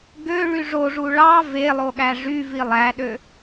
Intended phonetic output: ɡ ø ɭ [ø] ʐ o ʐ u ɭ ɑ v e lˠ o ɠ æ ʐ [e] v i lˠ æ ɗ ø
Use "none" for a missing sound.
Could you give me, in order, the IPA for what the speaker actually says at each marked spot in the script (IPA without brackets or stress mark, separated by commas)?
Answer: y, y